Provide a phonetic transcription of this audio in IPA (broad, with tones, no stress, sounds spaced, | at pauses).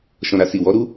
ʃ ɔ̃˨ ɾ a˨ s i˨ w ɔ˨˦ ɾ u˦